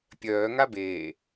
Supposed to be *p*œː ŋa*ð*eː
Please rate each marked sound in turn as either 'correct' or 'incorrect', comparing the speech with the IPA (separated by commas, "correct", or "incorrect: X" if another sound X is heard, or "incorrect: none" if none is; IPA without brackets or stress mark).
incorrect: pʲ, incorrect: b